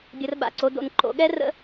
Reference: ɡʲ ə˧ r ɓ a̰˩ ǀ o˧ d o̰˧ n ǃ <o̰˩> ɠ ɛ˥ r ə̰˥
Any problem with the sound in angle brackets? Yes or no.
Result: yes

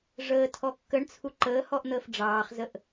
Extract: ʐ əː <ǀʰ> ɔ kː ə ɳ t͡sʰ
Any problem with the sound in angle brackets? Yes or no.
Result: yes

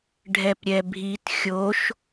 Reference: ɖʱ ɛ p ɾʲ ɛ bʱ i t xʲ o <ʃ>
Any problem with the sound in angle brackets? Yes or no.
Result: no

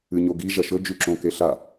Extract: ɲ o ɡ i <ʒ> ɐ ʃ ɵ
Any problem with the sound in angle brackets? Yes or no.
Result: no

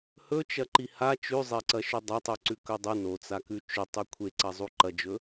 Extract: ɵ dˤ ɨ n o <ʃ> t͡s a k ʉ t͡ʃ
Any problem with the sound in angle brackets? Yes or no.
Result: yes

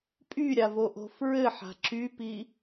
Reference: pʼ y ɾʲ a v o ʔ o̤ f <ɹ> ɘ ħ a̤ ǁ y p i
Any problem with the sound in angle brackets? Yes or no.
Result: no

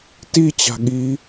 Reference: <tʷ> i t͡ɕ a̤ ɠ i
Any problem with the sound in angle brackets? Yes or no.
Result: yes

